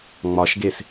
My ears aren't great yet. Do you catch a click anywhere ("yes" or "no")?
no